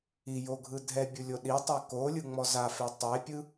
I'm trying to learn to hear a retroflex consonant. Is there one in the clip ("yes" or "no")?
no